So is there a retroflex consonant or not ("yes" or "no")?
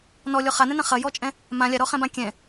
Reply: no